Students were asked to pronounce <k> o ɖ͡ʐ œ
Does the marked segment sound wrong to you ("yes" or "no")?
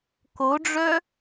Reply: no